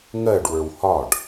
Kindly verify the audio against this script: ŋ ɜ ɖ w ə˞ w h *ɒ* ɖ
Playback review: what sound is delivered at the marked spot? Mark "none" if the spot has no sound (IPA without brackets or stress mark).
ɒ